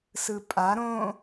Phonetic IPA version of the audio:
s ɯ pʼ a ɾ õ

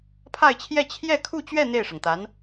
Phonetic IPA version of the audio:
pʰ a˥˧ ɪ̯ t͡ɕʰ j ɛ˥˧ t͡ɕʰ j ɛ˥˧ kʰ u˥˧ t͡ɕ ɥ ɛ˥˧ n̪ e˥˩ ɪ̯ ʂ ɤ˩ ŋ t̪ a˧˥ n

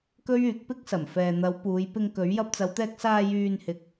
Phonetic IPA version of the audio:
k ɵ˥ ɥ yː˨˥ k̚ p ɪ˥ k̚ s ɐ˨˩ m f ɛː˨ n̪ ɐ˨˧ w p uː˨˧ j p ɪ˧ ŋ k ɵ˨˥ ɥ j ɐ˧ p̚ t͡s ɐ˨˧ w t̪ ɛː˧ k̚ s aː˧ j yː˧ n h ɪ˨ k̚

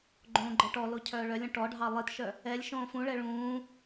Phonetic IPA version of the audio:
ɡ͡ǃ õː ɡ͡ǃ ɜ ʈ ɔ l o cʰ œː ɭ œ lʲ õ ʈ ɔ ɖʱ ɑ lˠ i t ʃ œ | ɛ lʲ ʃ õː f ũ ɭ ɛ ɭ ũː

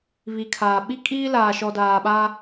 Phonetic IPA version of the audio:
β i˨ kʰ aː˨ ɓ i˦ kʼ iː˦ l aː˨ ʃ ɔ˨ d aː˨ ɓ a˦

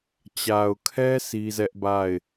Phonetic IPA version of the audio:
t͡ɕ a˨ ʊ̯ kʰ ɛ˦ s i˦ z ɛ˦ ʔ b a˦˨ ɪ̯

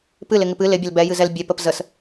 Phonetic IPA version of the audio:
p ɨ l ɪ ŋ ɪ p ɨ l ɪ bʲ ə l b ɛ j ɨ z ɛ l bʲ ɛ p ə p z ə s

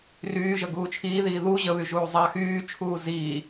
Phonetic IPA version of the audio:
r yː ʒ ə ɡ uː t͡ʃʰ iː ð iː ð u ʑ ə β y ʒ uː zˤ a x yː t͡ʃʰ uː z iː

